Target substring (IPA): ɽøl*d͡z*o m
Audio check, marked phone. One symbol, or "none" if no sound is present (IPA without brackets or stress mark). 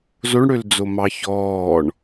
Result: d͡z